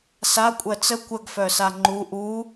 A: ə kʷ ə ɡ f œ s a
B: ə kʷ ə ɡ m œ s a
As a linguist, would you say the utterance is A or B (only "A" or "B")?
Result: A